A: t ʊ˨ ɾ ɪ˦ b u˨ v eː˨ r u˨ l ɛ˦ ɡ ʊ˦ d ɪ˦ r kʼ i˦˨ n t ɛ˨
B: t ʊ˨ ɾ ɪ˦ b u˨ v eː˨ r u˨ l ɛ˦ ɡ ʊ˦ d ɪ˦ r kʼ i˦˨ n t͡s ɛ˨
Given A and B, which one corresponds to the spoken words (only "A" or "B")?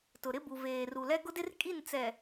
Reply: B